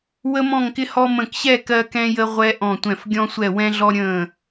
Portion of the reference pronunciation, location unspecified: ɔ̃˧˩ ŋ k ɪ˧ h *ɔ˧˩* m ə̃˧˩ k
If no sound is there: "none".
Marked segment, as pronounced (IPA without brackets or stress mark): ɔ˧